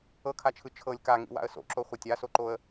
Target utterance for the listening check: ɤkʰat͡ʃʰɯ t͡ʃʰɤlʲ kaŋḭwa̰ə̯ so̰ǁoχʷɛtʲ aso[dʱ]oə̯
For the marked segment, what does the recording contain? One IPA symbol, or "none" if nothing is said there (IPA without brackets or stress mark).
ǃ